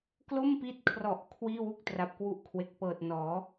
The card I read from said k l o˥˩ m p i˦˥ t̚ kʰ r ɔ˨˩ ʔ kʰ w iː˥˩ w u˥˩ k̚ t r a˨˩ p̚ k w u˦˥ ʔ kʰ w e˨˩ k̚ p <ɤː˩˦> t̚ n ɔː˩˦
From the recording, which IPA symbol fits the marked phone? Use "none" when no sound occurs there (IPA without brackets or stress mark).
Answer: ɤː˨˩